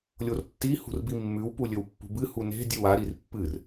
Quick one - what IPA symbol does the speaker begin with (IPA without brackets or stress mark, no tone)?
lʲ